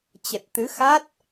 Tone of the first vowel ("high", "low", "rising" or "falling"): low